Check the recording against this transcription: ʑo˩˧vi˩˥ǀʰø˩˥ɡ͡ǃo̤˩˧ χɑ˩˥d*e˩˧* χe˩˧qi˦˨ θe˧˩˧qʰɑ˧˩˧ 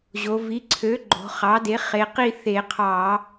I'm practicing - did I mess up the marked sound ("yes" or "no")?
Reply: yes